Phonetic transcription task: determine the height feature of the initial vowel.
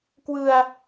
high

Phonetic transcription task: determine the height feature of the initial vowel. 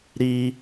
high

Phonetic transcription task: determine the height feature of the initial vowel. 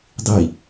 high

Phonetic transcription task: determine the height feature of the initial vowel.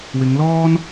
high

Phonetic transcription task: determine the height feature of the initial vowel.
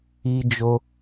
high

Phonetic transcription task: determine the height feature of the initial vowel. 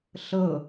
mid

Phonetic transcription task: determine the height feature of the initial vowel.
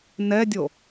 mid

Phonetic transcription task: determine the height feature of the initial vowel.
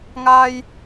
low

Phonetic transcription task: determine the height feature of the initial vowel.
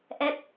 mid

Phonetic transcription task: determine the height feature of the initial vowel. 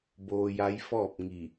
mid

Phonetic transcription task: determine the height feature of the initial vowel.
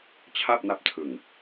low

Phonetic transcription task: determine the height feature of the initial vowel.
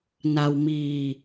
low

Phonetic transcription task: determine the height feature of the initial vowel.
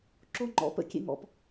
mid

